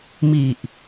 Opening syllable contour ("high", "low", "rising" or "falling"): low